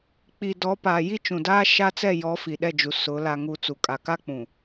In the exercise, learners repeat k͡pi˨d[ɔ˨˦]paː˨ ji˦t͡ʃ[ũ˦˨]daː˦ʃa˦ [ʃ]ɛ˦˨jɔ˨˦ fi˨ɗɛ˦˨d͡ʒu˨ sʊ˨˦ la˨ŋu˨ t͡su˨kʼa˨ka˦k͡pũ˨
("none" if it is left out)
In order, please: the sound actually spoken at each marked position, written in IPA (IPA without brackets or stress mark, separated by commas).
ɔ˨˦, ũ˨, t͡s